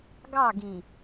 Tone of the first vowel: falling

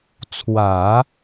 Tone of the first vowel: low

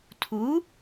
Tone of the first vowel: rising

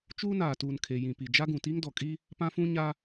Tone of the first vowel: high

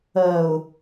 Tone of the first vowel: low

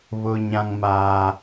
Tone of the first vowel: high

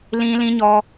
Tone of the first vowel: high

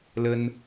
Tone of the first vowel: high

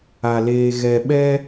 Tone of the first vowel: low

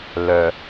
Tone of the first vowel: low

